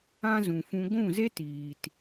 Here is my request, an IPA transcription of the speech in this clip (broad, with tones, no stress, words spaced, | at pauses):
ã˦ zũ˨fũ˧ ɡʷũ˦˨ze˦tiː˨t